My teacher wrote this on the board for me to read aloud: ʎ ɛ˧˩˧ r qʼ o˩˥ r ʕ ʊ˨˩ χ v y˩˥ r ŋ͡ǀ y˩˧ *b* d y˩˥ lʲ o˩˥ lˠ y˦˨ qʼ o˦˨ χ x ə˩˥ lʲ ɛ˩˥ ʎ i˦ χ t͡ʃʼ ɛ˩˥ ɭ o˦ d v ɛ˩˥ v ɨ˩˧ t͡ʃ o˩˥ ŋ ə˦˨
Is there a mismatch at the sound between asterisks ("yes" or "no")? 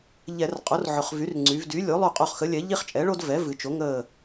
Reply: yes